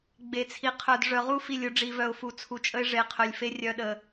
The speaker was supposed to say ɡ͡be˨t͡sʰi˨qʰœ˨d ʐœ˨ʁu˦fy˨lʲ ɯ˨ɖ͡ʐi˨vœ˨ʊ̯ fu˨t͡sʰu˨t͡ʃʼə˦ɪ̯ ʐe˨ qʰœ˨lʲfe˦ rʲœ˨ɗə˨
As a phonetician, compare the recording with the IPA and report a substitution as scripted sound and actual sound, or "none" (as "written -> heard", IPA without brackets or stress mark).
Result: y˨ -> i˨